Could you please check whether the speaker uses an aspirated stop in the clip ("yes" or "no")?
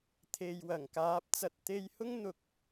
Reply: yes